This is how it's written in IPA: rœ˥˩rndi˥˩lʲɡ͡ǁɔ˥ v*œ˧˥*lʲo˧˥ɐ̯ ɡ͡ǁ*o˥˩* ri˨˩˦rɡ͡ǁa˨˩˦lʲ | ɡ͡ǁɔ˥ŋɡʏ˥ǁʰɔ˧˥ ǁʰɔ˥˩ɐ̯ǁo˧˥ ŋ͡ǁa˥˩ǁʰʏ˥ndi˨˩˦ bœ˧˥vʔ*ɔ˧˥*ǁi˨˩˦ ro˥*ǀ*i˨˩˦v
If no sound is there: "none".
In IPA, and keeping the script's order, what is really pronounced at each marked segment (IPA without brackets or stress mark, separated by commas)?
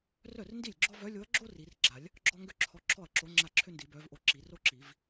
œ˧˥, o˥, o˧˥, ǁ